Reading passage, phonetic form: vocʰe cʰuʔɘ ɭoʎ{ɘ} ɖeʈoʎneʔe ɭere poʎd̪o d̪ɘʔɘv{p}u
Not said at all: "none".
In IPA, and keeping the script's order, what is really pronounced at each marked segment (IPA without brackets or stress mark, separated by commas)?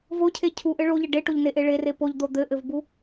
ɘ, b